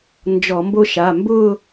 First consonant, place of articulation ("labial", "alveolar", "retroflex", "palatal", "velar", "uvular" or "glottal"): alveolar